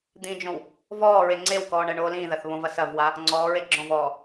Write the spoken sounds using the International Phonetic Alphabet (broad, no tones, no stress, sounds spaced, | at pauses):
d̪ ĩ d͡ʒ õ w | v ɔː ɹ e ŋ͡ǀ e w k ɔː ɳ ɛ ɳ oː l ĩː ð ɐ θ β õ v ɐ s ɐ v w a | ŋ͡ǀ ɔː ɹ e ɡ͡ǁ ɔ̃ v ɔː